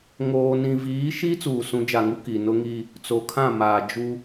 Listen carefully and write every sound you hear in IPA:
ŋoː˨nĩ˨viː˨˦ʃi˦ t͡suː˨sũ˨˦d͡ʒa˨ŋu˦ ki˨ nʊ˦ŋi˦ | t͡so˨kʰã˦˨ maː˨d͡ʒu˦

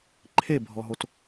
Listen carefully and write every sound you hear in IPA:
ǃʰebʱɔɦot

